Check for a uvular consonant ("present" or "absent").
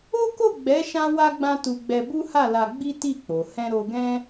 absent